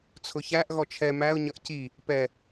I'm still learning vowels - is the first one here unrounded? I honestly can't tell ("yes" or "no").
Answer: no